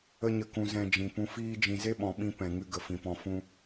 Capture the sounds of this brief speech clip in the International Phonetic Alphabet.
ə˦ ɲ ə˧ k ũ˧ z ɛ̃˧ d͡ʒ ĩ˨ p ũ˧ f iː˦ d͡ʒ ĩ˧ z e˦ ɓ ɔ̃˨ ɓ ĩ˧ p ɛ̃˨ ŋ ɨ˧ ɡ ə˨ f ĩ˨ p ɔ̃˧ f ũ˦

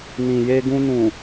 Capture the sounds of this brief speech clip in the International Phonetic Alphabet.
n ĩ˨ j e˧ ɡ ũ˧ n ũ˨

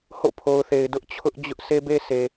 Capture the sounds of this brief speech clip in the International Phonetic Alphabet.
h o̰˦˨ pʰ o˨ ʊ̯ θ e˨ ɪ̯ d ʊ˦ ʔ t͡ɕʰ ʊ˦ ʔ d͡ʑ ʊ˦ ʔ sʰ e˦ b e˦ sʰ e˨

